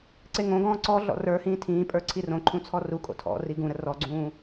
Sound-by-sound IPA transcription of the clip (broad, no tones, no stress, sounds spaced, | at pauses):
ǀ e ŋ õ ɡ ɔ̃ː ǀ ɔ ɮ ɔ̰ r ə˞ h ĩː tʰ ĩː pʼ ə˞ ǀʰ i r õ ǃʰ ũ t͡sʰ ɔ r u kʼ o̰ tʰ ɔ̰ r i ɡ ũ ɾ ə r ɔ ɡ͡ǀ ũː